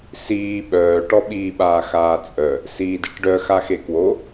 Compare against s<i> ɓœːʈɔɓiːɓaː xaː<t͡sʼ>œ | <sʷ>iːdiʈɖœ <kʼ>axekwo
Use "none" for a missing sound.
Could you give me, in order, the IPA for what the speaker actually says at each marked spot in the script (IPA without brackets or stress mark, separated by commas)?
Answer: iː, t͡sʼ, s, x